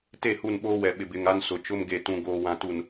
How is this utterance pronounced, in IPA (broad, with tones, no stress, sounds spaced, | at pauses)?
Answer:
t e˦˨ h u˦˨ n ɓ oː˦ w ɛ˨ ɓ ɪ˨ b ɪ˨ ŋ a˦ n s ʊ˨ t͡ʃ ʊ˦ m ɡ e˨ t ũ˨ ɡ oː˨ w ã˨ t u˨ n